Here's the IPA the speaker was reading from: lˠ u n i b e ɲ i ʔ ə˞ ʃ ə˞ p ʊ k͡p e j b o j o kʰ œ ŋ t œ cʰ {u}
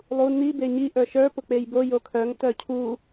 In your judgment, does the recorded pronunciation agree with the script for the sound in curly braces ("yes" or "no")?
yes